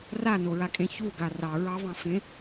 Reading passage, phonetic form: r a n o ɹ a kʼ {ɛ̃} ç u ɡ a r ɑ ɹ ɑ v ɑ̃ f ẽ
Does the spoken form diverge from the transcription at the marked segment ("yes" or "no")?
yes